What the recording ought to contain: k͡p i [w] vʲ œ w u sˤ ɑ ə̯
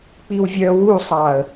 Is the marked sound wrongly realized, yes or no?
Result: no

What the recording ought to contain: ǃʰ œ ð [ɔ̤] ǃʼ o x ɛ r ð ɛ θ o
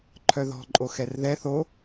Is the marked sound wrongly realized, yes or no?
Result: no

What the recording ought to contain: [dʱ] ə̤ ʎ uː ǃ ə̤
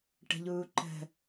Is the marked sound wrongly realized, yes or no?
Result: yes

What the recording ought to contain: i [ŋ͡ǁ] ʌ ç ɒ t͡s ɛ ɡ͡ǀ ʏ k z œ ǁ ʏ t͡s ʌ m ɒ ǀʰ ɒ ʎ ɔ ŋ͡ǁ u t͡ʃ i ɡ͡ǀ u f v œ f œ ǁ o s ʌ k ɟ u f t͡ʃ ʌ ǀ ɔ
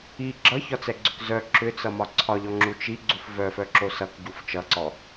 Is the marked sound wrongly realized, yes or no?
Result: yes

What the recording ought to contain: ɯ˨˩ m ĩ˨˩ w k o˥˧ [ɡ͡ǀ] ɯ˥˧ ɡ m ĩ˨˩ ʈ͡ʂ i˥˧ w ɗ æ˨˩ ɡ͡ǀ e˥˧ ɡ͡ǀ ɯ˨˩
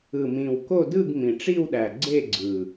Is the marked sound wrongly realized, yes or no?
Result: yes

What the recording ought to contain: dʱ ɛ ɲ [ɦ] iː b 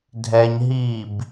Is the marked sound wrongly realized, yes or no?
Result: no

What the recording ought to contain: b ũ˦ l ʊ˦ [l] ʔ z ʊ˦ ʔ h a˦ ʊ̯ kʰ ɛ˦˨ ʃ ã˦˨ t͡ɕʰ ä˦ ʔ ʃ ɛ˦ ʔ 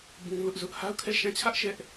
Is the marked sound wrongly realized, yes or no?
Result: yes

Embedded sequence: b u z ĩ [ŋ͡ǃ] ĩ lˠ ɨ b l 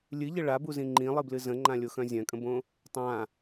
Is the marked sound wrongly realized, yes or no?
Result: no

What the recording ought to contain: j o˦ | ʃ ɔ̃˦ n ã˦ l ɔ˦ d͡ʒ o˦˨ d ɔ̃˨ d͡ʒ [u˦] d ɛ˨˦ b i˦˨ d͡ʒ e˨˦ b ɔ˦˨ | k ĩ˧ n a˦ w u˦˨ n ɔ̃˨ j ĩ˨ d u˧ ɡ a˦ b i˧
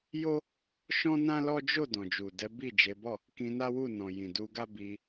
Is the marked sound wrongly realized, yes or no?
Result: yes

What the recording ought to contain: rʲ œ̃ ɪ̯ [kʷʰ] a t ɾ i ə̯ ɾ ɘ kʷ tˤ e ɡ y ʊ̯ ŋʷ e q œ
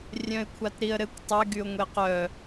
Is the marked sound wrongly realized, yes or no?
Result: no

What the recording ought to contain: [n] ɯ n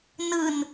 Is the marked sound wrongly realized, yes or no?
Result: no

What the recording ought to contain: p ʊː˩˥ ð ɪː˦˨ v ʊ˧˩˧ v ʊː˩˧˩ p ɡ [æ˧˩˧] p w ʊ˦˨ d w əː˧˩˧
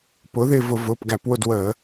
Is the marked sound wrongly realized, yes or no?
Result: no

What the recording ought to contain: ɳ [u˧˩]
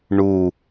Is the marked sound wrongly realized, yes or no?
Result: no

